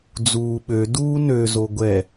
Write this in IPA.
d͡zuːɓø duːnø zoɡʷɛ

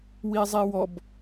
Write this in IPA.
wizˤiwɔb

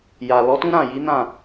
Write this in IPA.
ja˨ lɔ˨˦tũ˦ɾã˦˨ ji˨˦nã˦˨

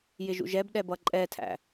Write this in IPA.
jɪʒṵʒɛbɗɛ bʌǃʼɛtʰæ̰

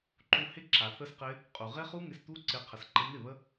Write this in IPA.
ǃu˧hɪ˦ǁa˨ θə˦sqɪ˦ | qʼu˨ʁɪ˦χu˦ ŋɪ˧st̪u˦ǀɪ˧ qʰə˧sǃɪ˦ n̪ɪ˦˨ βə˦

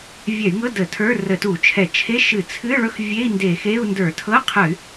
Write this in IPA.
vʲɛ˧˩˧y̯ŋɤ˧˥˧ də˧˩˧tʰə˞˧˥˧ rə˧˩˧tu˧˩˧t͡ʃʰɛ˧˩˧ t͡ʃʰe˧˥˧ ʃɨ˧˩˧t͡sʰɨ˧˥˧ɭɵ˧˥˧xvʲe˧˥˧i̯ nde˧˩˧xe˧˥˧u̯ ndə˞˧˩˧tʰɤ˧˥˧qʰə˧˩˧y̯

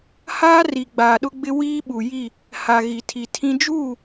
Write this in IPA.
haː˦ri˨ ɡ͡baː˨ɗʊ˦ɡ͡bɪ˦ wiː˦ɓu˨ ji˦˨ | ha˨ɣi˨tʰi˨tʰĩ˦ d͡ʒuː˦˨

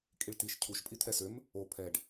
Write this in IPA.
kʼiɭtiʃ cʰuʃ pʼit̪ʰɛsøm | o pʰɛɖ

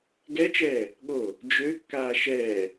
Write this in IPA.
ɡɛt͡ʃɛː | ɠo | d͡ʒøkːaː ʃɛː

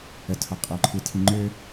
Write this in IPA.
ətʰɒ qʼɔǃʰɨtʰi ŋ͡ǃø

